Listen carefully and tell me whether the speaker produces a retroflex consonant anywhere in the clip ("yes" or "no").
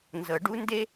yes